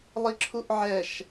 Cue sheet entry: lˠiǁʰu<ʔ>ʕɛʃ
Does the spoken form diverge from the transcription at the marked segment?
no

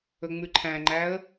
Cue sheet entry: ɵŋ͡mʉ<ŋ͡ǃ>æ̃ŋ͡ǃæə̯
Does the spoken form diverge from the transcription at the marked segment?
yes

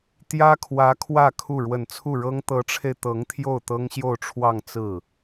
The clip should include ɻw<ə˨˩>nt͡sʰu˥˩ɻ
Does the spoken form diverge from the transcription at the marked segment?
no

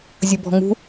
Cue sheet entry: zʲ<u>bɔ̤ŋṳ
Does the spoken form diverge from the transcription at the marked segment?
no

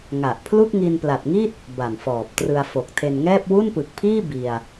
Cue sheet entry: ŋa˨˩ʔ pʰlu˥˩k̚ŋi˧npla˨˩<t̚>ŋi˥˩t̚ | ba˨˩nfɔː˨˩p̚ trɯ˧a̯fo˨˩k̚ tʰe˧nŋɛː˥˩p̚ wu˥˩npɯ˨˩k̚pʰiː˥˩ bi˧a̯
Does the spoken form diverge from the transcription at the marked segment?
no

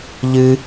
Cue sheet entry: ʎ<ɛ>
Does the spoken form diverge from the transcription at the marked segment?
yes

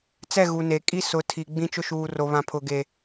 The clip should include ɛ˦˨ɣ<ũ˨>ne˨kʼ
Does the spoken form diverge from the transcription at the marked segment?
yes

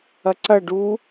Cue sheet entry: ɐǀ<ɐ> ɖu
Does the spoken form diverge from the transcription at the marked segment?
no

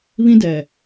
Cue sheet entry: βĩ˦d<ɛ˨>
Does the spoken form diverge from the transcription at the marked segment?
no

